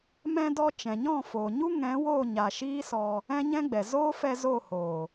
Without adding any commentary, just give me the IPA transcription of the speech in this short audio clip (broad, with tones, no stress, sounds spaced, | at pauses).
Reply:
m ɛ̃˧ d ɔ˧ t͡ʃ ɛ̃˨ ɲ ɔ̃˦˨ f oː˨ ɲ u˦ ŋ ɛ̃˨˦ w oː˦˨ ɲ a˨ ʃ iː˦ s ɔ˧ | ɛ̃˦ ɲ ɛ̃˦ ɡ͡b ɛ˨ z oː˦ f ɛ˧ z o˦˨ h oː˨